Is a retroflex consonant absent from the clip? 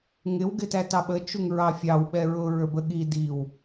yes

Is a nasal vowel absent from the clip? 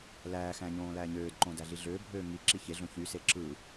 no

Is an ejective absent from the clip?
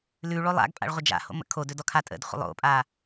no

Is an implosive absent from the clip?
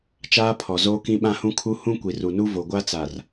no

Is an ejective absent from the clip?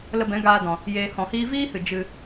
yes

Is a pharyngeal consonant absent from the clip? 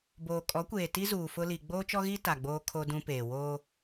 yes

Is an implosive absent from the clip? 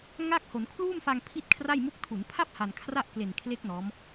yes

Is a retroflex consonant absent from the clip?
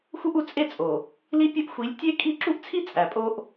yes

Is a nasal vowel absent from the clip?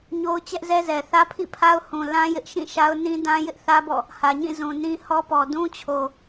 no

